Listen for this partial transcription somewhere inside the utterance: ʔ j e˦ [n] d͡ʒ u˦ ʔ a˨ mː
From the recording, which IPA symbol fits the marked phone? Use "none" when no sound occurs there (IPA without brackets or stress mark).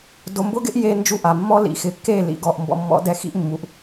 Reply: n